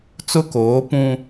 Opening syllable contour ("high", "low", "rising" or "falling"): high